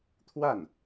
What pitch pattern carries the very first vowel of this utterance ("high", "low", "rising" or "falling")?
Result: falling